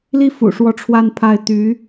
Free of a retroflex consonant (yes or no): no